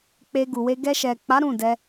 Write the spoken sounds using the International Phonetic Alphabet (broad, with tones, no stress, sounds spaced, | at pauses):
k͡p e˧ ɡ u˨ w e˧ ɡ ɛ˧ ʃ ɛ˨ k͡p a˨˦ ɾ ũ˦˨ d ɛ˧